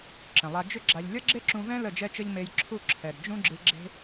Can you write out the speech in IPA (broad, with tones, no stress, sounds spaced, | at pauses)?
ǁ ə̃˨ lˠ a˧ d͡ʒ ʏ˦ ɡ͡ǁ a˧ ʎ lʲ ʌ˦ ɡ͡ǁ e˦ ǁ ũ˧ v ɛ̃˦ l ə˦˨ d͡ʒ ɛ˦ t͡ʃ ə˦ ʎ m e˧ j ǁʰ u˦˨ ǁʰ ɛ˨ d d͡ʒ ũ˦ ɡ͡ǁ ɨ˧ ɡ͡ǁ e̤˦